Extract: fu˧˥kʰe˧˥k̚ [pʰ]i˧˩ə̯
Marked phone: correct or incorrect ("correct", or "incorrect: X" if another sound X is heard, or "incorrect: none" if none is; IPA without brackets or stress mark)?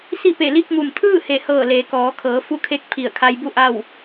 correct